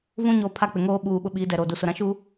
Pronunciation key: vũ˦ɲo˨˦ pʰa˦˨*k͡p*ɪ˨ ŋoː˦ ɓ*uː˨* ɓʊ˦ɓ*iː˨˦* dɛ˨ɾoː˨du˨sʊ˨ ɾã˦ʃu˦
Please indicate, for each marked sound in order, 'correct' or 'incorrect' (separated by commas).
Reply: correct, correct, correct